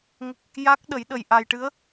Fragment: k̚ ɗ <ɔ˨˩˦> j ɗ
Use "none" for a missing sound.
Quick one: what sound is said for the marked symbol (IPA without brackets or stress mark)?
ə˨˩˦